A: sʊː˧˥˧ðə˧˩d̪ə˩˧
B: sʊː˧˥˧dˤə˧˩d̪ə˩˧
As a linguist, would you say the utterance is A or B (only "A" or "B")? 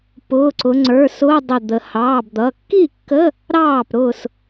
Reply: B